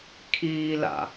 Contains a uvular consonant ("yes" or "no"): no